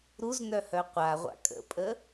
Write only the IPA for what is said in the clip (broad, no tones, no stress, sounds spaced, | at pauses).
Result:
ɾ u z n œ h œ qʷ a ʁʷ a̰ kʼ ə̰ pʼ ə